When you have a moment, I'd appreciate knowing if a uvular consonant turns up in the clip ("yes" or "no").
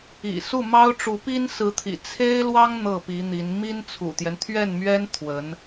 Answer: no